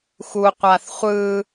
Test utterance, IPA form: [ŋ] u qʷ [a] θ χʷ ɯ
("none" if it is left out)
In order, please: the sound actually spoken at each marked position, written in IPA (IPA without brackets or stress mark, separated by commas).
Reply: x, a